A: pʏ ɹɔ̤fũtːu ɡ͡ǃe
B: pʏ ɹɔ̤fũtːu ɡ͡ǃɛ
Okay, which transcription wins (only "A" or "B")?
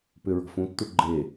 A